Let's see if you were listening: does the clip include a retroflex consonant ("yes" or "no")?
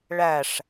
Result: yes